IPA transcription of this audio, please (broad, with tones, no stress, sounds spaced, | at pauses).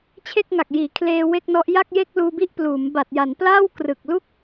t͡ɕʰ e˥˩ k̚ ŋ a˨˩ k̚ j iː˩˦ kʰ l eː˧ w e˥˩ k̚ n ɔ˦˥ ʔ j a˥˩ k̚ j e˥˩ k̚ l uː˧ b i˥˩ ʔ p l uː˩˦ m b a˨˩ t̚ j a˩˦ n p l aː˥˩ w k r ɯ˨˩ k̚ l u˥˩ k̚